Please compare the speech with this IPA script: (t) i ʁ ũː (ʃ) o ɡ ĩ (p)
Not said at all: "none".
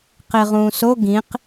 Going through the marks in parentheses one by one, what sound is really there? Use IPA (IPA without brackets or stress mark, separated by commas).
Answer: q, s, q